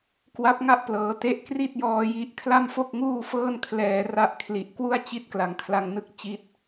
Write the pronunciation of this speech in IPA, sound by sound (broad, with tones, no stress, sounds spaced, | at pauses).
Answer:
k w a˦˥ p̚ ŋ a˥˩ ʔ p l ɤː˩˦ t e˦˥ ʔ k r i˥˩ t̚ j ɔː˧ j i˦˥ ʔ kʰ l a˥˩ m f o˥˩ k̚ ŋ uː˥˩ f ɤː˥˩ n kʰ l ɛː˧ r a˥˩ ʔ kʰ l i˨˩ ʔ k w u˥˩ a̯ t͡ɕ i˥˩ t̚ k l a˨˩ ŋ kʰ l a˧ ŋ n ɯ˥˩ k̚ t͡ɕ i˦˥ t̚